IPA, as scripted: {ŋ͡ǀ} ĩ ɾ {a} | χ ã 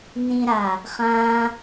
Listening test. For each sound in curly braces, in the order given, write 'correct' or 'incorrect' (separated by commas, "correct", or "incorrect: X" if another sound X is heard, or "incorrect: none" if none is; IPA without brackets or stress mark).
incorrect: n, correct